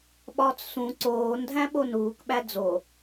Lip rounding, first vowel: rounded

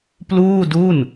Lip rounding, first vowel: rounded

